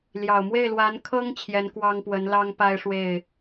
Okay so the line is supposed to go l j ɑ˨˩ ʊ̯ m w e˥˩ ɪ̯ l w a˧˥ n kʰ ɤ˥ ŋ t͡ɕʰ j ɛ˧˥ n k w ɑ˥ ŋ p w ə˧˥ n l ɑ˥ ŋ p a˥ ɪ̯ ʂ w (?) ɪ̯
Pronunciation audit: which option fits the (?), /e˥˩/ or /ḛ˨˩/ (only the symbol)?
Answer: e˥˩